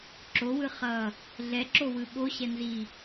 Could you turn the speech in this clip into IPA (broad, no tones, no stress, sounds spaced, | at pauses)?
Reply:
ǁ o w ɯ χ ʌ | ɮ ɛ ǁ o w ɯ ɓ o ɕ ɛ n z i